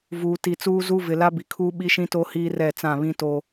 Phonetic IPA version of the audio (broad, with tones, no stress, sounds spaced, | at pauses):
v uː˨ t i˨ t͡s uː˦ z u˦ v ɪ˨ l a˦ b i˨ kʰ uː˦ ɓ i˦ ʃ ĩ˦ t o˦ h iː˦ r ɛ˦˨ t͡s ã˦˨ β ĩ˦ t o˦